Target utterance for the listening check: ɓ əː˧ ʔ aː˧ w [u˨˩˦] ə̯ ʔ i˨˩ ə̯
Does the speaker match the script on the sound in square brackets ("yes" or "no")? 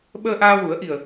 yes